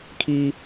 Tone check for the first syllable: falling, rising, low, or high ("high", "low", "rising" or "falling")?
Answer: high